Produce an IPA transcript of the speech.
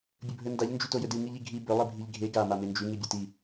bʲɵbʱɵndaʎ nd͡ʒʉtojɵdɨ ŋɨʎiɡʱi bɵ lˠibʱiʎɡʱe ɡa mamend͡ʒʉ ŋibʲuti

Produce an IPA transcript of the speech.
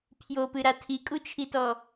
pʰjopɨɾa tʰikʼut͡ʃʰitɔ

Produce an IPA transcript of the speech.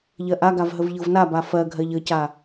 ʎɜʔaɡav ɦəvʎɤvnaba fɜ ɡʱɜʎəca

